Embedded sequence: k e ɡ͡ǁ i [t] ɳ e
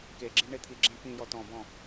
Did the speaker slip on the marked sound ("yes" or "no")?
yes